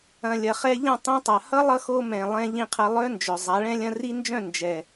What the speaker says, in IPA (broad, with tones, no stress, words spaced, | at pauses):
ɐ̃˨lʲɐ˨ χɛ˧ʎɐ̃˦˨tˤĩ˧tˤa˨ hʌ˦lˠʌ˧xo˧ mɛ̃˨lˠɛ̃˧ ʎĩ˦˨qʰɐ˦ lˠœ˦nd͡ʒœ˨ zˤa˨˦ɭɛ̃˦lʲɐ̃˦ ri˦nd͡ʒœ̃˦˨ nd͡ʒɛ˨